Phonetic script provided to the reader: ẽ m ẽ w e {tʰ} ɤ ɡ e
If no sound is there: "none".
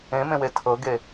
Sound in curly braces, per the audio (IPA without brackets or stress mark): tʰ